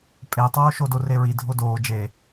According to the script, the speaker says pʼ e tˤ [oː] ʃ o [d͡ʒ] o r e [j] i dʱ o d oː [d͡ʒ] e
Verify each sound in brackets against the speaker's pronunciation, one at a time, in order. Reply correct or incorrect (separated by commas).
correct, incorrect, incorrect, correct